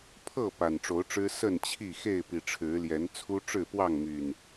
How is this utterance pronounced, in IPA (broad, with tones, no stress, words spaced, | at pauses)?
pʰɤ˥˨ pa˨˩nʈ͡ʂo˨˦ʊ̯ʈ͡ʂɻ̩˦ sə˥˨nt͡ɕʰi˥˨ xe˥˨ɪ̯pi˨˩ ʈ͡ʂʰɻ̩˨˦ljɛ˨˦nt͡sʰu˦ ʈ͡ʂɻ̩˥˨pwɑ˥˨ŋmy˨˩n